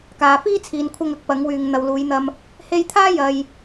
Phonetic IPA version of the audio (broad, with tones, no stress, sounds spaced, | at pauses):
k aː˨ f iː˥ t͡sʰ iː˨ n kʷʰ ɐ˧ ŋ ɐ˨˥ k̚ p ɐ˨˧ ŋ w yː˨ ŋ n̪ ɐ˨ w l uː˨˧ j n̪ ɐ˧ m | h e˧ j t̪ʰ aː˥ j ɐ˧ j